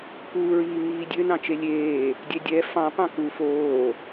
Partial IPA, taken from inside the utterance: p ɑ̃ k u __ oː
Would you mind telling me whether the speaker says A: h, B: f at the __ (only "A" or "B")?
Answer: B